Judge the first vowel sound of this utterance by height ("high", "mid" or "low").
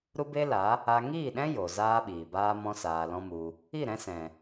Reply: high